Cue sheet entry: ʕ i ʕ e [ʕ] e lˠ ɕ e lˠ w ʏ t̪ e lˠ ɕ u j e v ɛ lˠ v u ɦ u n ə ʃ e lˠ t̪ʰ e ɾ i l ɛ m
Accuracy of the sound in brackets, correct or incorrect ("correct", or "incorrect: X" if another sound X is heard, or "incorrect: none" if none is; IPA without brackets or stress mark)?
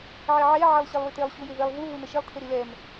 correct